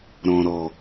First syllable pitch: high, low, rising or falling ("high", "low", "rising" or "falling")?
low